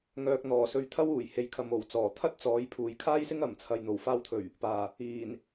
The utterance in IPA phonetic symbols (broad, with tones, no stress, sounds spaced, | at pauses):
ŋ œː˨ k̚ n̪ ɔː˨˩ s ɵ˧ ɥ t̪ʰ ɐ˥ w uː˨˩ j h e˨ j kʰ ɐ˨ m o˨˩ w t͡s ɔː˨˩ t̪ʰ ɐ˥ t̚ t͡s ɔː˨˥ j pʰ uː˨ j kʰ aː˥ j s ɪ˥ ŋ ɐ˨˩ m t͡sʰ ɐ˨ j n̪ o˨˩ w f aː˧ w t̪ʰ ɵ˨˩ ɥ | p aː˨˩ | iː˨˩ n